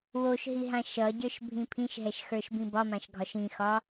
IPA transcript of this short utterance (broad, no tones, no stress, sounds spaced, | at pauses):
w o ʃ ɦ i ɦ ã ʃ ʌ ɟ ə˞ ʃ bʱ ĩ pʰ ĩ ʃ ɦ ɛ ʃ x ə˞ ʃ b ĩ b ɒ m ã ʃ ɡʱ ɒ ʃ ĩ x ɒ